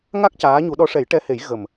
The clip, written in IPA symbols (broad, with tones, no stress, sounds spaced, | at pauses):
ŋ a˦˥ k̚ c aː˧˥ ɲ u˧˥ ɗ ɔ˧˥ ʂ ɛ˨˩˦ j ʈ ɛ˧˥ h e˨˩˦ j ɣ ə˨˩ m